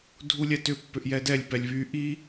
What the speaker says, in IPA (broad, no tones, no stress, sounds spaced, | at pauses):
dʱ u lʲ ɛ t ʏ pː ʏ ʔ j ɛ d ɛ lʲ p ɛ lʲ β y ʔ i